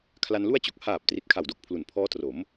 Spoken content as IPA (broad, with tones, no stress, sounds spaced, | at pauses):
kʰ l a˧ n l u˥˩ a̯ t͡ɕ o˨˩ k̚ h aː˨˩ p̚ t r i˨˩ t̚ kʰ a˨˩ w d o˨˩ k̚ pʰ l u˩˦ n pʰ ɔː˦˥ t r o˩˦ m